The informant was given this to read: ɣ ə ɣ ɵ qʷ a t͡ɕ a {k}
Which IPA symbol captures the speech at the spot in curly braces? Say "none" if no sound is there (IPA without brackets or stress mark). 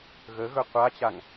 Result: ŋ